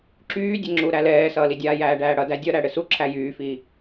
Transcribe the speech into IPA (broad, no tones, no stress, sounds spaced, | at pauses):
ǁ yː dʲ ɘ ŋ͡ǁ u ɾ æ l ɛː s ʌː l i dʲ aː j æː ɖ æː ɽ ʌ d æ dʲ ʌ ɾ æ ɽ ɘ s u ǁʰ æ j yː f iː